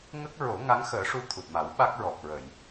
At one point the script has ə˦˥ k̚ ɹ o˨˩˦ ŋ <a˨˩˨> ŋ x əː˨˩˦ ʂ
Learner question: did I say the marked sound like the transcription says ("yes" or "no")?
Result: no